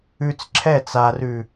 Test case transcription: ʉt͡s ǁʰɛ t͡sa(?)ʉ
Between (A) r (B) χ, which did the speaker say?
A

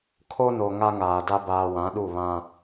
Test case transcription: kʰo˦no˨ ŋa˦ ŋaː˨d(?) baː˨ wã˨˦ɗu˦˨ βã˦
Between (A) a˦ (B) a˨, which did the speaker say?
A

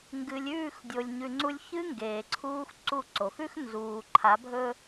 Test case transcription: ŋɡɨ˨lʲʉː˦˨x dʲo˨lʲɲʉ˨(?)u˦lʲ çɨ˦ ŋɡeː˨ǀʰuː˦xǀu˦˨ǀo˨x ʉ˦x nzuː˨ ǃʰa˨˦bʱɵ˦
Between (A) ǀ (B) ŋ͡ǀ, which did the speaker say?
B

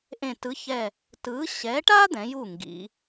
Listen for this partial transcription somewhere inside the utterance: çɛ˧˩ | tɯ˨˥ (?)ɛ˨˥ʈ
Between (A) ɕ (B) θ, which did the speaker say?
A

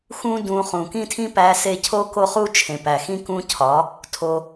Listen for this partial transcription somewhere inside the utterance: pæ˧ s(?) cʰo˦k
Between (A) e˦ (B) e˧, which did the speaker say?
A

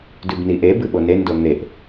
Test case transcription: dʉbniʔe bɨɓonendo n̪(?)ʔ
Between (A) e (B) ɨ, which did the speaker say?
A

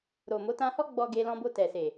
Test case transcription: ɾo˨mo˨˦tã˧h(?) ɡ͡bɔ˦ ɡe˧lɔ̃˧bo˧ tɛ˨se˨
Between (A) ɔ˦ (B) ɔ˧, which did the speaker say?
A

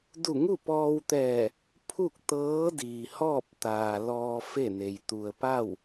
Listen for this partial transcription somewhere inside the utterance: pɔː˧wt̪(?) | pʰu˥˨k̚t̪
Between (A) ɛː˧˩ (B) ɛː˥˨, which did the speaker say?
A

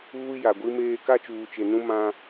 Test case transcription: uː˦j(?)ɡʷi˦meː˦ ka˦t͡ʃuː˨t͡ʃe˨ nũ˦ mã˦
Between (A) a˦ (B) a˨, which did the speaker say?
B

